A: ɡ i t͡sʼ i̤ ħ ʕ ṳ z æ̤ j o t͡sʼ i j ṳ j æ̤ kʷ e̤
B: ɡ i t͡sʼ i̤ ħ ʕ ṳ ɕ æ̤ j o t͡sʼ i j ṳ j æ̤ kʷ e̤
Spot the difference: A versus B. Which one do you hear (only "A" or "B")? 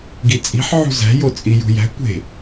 A